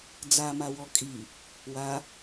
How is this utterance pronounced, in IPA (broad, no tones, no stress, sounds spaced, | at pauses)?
d͡z a m a w ɔ kʼ i | w a